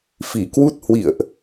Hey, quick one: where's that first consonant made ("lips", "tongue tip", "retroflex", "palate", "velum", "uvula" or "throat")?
lips